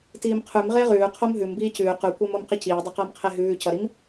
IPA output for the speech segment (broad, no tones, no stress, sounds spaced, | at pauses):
t iː m qʰ ʉ m ʁ e ʁ ʉː qʰ o m ɦ ʉ m b iː c ʉː q ʉ kʷ ɛ m o m q i c iː dˤ e q ʌː m qʰ e ɦ ʉː c ʌ ɾ i m